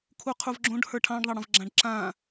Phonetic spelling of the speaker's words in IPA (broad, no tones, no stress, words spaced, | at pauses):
kʰuqʰuvɡ͡ǁõɖhə˞ ʈʰɑ̃ɖðˤɑɽə̃v ɡ͡ǁãɖǁã